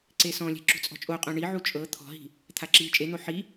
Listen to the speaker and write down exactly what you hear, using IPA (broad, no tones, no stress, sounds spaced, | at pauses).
ǀ e s ɔ̃ lʲ ɛ̤ ǁ ṳ t͡sʼ ɔ̤ t͡ʃʼ o qʼ õ ɳ i ʕ u t͡ʃʼ ɤ t̪ʰ ɔ̤ ɦ i̤ | t̪ʰ a ǁ iː t͡ʃʼ e n̪ o ħ i